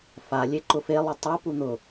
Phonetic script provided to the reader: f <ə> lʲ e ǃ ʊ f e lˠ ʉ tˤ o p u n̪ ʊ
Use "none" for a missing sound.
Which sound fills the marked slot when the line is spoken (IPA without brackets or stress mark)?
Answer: a